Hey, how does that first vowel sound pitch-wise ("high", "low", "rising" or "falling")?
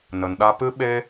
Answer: low